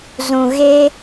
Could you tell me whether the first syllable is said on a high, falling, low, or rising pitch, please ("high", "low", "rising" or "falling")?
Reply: low